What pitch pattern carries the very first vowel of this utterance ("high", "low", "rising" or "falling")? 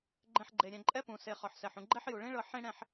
low